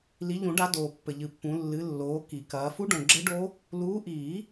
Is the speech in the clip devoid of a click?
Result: no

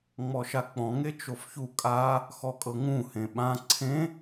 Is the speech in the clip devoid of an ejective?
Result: no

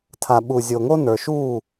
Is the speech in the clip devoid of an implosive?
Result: no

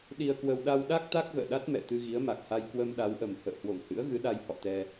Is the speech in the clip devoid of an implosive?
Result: no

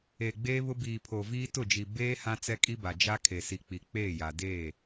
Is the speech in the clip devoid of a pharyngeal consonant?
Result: yes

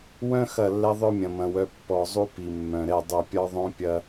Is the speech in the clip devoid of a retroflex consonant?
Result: yes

